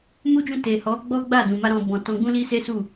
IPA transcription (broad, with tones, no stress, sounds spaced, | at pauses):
m u˦ d͡ʒ ũ˦˨ t e˨ h ɔ˨˦ ɡ͡b ɔ˦ ɡ͡b a˦˨ d ũ˨ m a˧ ɾ ɔ̃˨ b ɔ̃˨ t ɔ̃˧ ɡ͡b ũ˦ l i˦ s e˦ s u˦˨